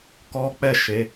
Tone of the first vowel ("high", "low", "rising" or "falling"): high